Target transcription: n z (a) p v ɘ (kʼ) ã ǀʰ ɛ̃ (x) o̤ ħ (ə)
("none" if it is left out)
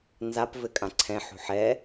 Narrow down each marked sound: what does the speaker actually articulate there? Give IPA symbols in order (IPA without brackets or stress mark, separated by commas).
a, kʼ, ħ, ɛ